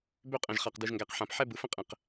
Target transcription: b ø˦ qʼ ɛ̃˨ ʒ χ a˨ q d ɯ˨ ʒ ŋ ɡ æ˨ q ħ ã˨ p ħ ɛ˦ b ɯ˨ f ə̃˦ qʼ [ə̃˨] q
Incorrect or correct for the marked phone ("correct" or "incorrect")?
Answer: incorrect